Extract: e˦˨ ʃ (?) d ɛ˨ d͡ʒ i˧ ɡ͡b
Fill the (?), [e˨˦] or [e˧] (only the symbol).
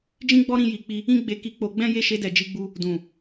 e˧